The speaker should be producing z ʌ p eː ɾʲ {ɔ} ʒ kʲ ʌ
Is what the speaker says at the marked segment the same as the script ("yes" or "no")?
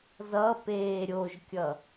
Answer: no